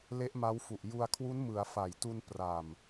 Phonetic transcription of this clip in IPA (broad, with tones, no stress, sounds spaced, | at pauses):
l e˦˥ ʔ m a˦˥ w f u˨˩ ʔ j u˧ a̯ kʰ w u˦˥ n m ɯ˩˦ a̯ f a˨˩ j t u˧ n p r a˨˩ m